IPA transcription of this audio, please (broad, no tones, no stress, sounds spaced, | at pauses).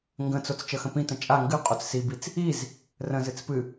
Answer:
ŋ ɡ ə̃ t͡s o t͡s t͡ʃ ə x ə̃ p ĩ t ə̃ t͡ʃʼ a ŋ ɡ ɨ qʼ o t͡s s i b i t͡s | i z | r ə̃ z ɨ t͡s p ɨ